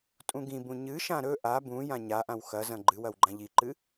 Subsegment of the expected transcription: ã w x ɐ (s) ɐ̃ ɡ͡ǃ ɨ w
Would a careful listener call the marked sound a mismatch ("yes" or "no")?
yes